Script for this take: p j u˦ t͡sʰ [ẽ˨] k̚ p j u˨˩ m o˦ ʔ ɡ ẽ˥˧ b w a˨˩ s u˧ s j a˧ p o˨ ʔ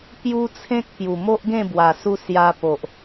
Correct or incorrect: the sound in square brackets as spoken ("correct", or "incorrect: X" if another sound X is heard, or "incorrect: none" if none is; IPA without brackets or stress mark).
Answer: incorrect: ẽ˦